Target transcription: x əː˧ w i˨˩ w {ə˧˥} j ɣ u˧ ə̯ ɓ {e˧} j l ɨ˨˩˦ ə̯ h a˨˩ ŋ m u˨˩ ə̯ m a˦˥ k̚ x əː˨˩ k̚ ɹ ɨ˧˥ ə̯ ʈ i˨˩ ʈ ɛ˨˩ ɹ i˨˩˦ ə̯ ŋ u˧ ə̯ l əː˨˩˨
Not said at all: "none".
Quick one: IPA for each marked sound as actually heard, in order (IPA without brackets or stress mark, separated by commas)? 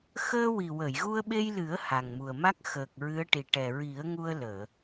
ə˨˩˨, e˧